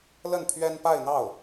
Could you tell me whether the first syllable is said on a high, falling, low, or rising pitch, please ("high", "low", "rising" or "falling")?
falling